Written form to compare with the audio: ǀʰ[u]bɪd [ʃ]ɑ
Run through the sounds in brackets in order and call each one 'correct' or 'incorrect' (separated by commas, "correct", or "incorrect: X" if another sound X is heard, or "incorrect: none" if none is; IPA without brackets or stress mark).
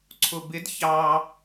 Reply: incorrect: ʊ, incorrect: ç